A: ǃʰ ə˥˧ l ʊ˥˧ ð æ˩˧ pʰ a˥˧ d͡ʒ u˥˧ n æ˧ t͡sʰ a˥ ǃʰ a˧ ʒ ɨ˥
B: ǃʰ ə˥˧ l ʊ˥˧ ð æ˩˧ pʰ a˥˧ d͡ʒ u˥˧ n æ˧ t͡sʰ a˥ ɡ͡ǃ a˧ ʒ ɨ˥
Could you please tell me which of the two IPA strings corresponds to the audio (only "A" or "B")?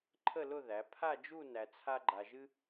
B